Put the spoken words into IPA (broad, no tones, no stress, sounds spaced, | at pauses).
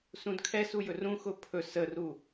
s ũ d kʰ ɛ s u j ɵ r ũ x ʊ pʰ ɵ s ə r u